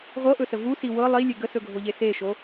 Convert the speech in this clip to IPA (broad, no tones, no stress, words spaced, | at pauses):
ʁʷɤʔɵsə vusi wɤ lˠilʲe ɡəsɵɡʱoʎe seʃo